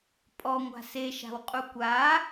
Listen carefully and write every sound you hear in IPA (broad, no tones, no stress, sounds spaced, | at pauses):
pʼ ɔ ŋʷ a̤ s e ʃ a̤ w qʼ u kʷ a